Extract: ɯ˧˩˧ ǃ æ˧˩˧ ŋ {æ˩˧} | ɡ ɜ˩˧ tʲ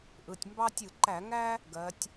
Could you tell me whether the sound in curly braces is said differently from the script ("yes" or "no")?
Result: yes